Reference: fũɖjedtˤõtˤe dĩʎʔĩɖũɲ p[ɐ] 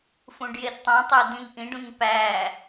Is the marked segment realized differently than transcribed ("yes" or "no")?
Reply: yes